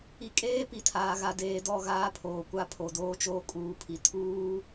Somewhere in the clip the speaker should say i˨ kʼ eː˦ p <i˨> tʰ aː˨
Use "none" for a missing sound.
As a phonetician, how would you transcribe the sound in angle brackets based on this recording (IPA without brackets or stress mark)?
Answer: i˨